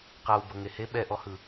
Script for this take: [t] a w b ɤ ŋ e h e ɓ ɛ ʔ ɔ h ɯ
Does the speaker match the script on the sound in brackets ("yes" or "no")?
no